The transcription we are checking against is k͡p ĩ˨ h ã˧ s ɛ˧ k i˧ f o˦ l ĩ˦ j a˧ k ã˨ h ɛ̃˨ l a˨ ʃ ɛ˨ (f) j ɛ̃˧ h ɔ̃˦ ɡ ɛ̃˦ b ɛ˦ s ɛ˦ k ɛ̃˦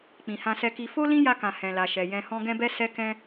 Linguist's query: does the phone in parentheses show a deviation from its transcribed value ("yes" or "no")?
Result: yes